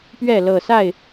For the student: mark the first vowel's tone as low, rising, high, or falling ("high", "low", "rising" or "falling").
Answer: falling